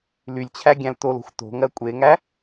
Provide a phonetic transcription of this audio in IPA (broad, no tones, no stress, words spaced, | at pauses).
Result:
lylʲt͡ɕʰæ ɡʲæ̃ltolo̤xʷ to̤ŋɜ kʷʼeŋæ